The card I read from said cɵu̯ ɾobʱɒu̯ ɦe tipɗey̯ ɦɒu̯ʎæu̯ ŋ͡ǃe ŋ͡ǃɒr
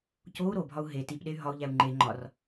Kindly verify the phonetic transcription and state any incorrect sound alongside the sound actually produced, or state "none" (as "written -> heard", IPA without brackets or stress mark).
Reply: ɵ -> o